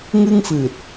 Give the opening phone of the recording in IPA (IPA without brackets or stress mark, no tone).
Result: ŋ